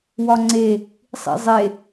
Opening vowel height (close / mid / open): open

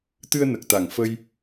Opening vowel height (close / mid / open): close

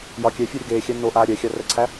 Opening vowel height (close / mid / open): open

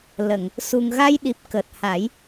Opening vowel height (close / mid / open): mid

